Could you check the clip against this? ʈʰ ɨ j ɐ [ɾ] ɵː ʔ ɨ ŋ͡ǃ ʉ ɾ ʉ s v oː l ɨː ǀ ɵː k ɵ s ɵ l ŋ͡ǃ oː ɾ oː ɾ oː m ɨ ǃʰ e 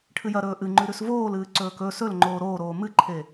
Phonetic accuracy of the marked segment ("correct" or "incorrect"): correct